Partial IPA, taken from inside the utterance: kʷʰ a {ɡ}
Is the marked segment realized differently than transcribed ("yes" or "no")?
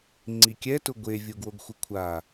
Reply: yes